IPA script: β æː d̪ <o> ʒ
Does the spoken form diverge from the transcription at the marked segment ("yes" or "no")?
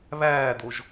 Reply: no